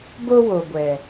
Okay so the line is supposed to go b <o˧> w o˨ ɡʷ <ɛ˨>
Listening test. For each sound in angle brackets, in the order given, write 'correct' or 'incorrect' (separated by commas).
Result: correct, correct